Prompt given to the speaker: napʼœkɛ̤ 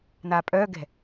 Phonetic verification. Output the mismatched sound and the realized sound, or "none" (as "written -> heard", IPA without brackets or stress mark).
k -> ɡ